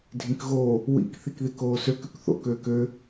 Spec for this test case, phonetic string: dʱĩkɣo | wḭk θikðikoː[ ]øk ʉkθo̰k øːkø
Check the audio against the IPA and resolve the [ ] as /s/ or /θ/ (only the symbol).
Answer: s